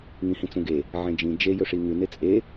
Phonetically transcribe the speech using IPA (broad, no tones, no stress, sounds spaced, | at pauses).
ŋ ĩ h ĩ t͡s ũ ɡ e | ʕ ẽ d͡ʒ ĩ d͡ʒ e j ɵ ʂ i ŋ ʉ n e t͡sʼ e